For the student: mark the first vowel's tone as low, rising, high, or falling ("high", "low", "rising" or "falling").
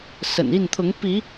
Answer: low